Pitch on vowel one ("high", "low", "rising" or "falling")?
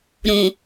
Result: low